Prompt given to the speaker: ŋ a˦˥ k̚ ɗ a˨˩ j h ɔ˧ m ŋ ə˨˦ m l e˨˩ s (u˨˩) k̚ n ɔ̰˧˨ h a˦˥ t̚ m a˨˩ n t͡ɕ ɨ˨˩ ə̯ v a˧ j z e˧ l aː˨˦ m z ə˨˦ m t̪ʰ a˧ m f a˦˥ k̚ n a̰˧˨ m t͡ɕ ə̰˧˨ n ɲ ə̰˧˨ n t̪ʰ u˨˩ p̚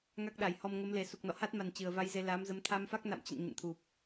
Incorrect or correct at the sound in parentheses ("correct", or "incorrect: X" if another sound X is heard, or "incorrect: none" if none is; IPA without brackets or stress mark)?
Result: correct